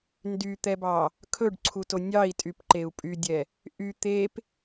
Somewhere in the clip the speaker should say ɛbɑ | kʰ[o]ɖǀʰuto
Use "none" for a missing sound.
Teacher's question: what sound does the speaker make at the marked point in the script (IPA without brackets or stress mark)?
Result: ɵ